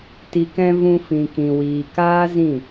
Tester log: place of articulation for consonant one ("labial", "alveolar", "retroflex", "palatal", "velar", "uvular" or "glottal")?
alveolar